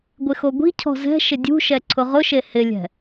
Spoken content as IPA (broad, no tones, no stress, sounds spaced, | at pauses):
ɡʷ ɪ x o ɡʷ i̤ cʰ ɔ̤ z ɛ̤ ʃ ɪ dʲ ṳ ʃ ɛ ǀʰ ʊ ʁ ʊ ʃ e h ɪ lʲ ɛ̤